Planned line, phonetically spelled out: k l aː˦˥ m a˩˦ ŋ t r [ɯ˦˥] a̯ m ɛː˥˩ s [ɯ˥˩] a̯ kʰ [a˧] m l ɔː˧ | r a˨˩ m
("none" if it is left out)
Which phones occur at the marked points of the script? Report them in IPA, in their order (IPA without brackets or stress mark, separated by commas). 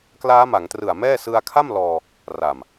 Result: ɯ˨˩, ɯ˧, a˥˩